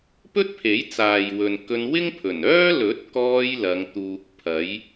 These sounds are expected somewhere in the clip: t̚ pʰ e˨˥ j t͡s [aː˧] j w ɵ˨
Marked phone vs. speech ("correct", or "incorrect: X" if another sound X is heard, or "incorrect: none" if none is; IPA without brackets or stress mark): incorrect: aː˨